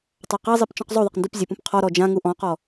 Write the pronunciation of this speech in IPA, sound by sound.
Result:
tˤ a q a zˤ i p t͡ʃ ɔ̃ q zˤ u ðˤ ɪ q n d u p zʲ e p ũ p qʰ ɔ ɾ ɔ d͡ʒ ã ŋ u ʔ ɔ̃ q ɔ

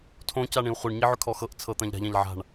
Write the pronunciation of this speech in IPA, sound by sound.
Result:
tʰ õ c a ɳ ĩ u̯ χʷ ɤ ɳ ɲ i ʕ ʏ kʰ ɔ x ɤ ʔ t͡sʰ ɤ t̪ ã ʎ ɾ a̤ ʎ ã ʎ ʕ a̤ ɳ

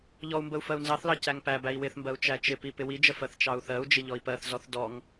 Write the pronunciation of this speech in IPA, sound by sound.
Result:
ʎ ɔ u̯ m b ə u̯ f ɜ u̯ n z ɑ θ l ɑ c æ ŋ p æ b æ i̯ w ɪ θ m b ɜ u̯ t͡ʃ æ t͡ʃ ɪ p i p ɪ w i d͡ʒ ə f ɜ θ t͡ʃ ɑ u̯ θ ɜ u̯ d͡ʒ ɪ ʎ ɔ i̯ p ɜ θ z ɔ θ d ɔ ŋ

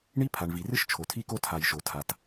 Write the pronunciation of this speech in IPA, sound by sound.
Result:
ɳ i˥ pʰ a˩ ɳ v i˩ r ɨ˥ ʃ t͡ʃʰ o˩ tʰ i˥ k o˥ tʰ a˩ j ʃ o˩ tʰ a˩ t

